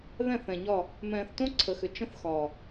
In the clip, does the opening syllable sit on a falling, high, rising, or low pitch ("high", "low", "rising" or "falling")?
falling